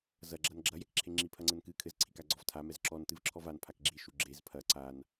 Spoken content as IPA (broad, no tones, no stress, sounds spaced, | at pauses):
z ɐ ɡ͡ǁ ɐ n ɡ͡ǁ ɐ j ɛ k ǁʰ e ŋ͡ǁ i pʰ ɐ ŋ͡ǀ ɘ n k ɨ kʰ ɘ z ǀʰ i k a ɡ͡ǀ ɔ v tʰ a m ɛ z ǁ ɔ n t ɨ v ǁʰ ɔ v a n pʰ a k ɡ͡ǁ i ʃ u ɡ͡ǁ e z pʰ ɐ ǀ a n